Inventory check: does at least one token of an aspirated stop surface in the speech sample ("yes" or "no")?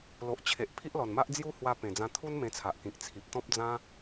yes